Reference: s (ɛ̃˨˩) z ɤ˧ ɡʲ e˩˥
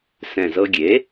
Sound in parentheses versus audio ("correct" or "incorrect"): correct